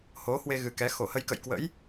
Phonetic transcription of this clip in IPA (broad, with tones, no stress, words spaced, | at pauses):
ho˨˦hwe˧ɣɨ˨˩ kɛ˨˦ xo˧˩hə˧jkə̰˧˨j kwə̰˧˥j